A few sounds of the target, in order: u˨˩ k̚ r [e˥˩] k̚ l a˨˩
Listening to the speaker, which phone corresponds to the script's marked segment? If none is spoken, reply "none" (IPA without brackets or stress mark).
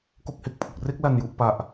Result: e˥˩